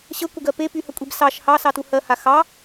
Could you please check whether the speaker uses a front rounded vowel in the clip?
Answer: yes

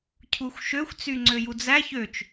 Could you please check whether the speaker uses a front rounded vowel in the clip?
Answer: yes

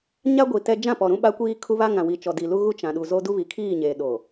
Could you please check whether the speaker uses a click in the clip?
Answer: no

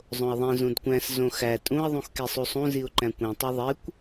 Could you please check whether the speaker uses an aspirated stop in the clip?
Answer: no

